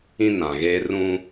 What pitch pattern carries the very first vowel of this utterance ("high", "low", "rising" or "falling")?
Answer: high